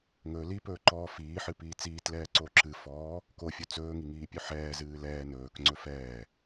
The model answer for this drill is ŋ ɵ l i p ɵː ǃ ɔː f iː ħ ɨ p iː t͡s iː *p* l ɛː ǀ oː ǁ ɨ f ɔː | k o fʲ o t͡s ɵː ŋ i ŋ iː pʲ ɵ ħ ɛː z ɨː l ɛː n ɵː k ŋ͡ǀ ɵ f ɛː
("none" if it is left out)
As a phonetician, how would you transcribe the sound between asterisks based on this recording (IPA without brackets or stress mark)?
t